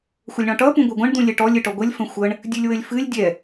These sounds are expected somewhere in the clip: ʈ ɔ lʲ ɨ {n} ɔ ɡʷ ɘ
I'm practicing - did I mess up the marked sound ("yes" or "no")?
yes